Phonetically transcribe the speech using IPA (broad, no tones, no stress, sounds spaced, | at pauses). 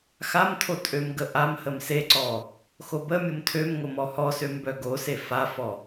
x a m tʰ o tʼ ø m ɡ ə ʔ a m h ə m s e ǀ ɔ | x o b ə mʲ o m tʰ ø m ŋ o m ɔ h ɔ s ø m b œ ɡ o s e f a f ɔ